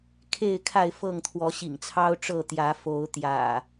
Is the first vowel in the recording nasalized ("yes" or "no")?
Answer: no